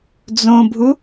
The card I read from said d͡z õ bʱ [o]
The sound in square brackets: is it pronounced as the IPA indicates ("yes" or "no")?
no